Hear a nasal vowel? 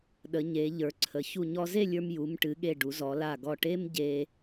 no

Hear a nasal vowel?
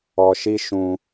yes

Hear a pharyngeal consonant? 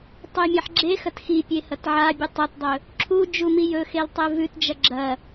yes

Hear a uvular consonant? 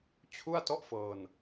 no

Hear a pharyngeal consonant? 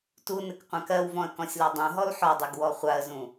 yes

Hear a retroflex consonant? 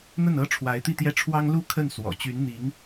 yes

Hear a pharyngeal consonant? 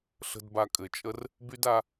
no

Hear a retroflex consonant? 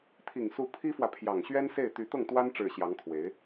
yes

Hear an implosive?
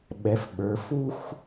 yes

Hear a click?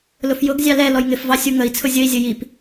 no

